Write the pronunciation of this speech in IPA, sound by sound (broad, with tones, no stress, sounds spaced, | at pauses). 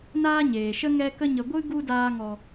n aː˦ ɲ eː˨ ʃ ə˦ ŋ ɛ˦ k ə˦ ɲ ə˧ ɡʷ ɨ˦ ɡ u˦ d aː˧ ŋ ɔ˨